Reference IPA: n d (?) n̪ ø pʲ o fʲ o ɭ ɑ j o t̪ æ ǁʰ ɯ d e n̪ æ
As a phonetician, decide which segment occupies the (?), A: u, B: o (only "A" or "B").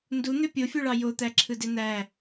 A